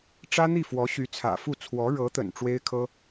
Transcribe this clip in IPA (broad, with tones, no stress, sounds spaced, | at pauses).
ʈ͡ʂ ä˥ n̪ i˥˩ f w ɔ˧˥ ɕ y˧˥ t͡sʰ ä̰˨˩ f u˥˩ t͡sʰ w ɔ˧˥ ɻ ɤ˧˥ t̪ ə̰˨˩ n ʈ͡ʂ w e˥ ɪ̯ kʰ ɤ˥